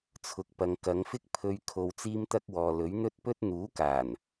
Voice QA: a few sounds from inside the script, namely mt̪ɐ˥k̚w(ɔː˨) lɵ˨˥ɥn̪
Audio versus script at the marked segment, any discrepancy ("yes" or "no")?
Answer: no